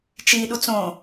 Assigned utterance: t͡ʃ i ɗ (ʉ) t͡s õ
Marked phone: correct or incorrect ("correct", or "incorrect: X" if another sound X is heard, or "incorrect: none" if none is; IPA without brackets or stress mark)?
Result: incorrect: u